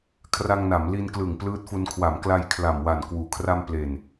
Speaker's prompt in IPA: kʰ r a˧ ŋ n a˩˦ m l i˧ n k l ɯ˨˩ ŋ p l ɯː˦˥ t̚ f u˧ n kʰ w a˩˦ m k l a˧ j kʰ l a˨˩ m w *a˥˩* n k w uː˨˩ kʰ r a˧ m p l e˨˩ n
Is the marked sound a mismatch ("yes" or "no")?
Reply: yes